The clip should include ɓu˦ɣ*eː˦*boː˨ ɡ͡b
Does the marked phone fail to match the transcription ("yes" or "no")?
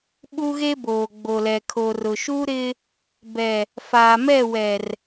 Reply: yes